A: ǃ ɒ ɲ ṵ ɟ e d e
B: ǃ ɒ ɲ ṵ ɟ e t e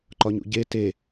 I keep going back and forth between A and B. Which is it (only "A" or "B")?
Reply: B